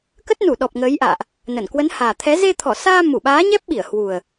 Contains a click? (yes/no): no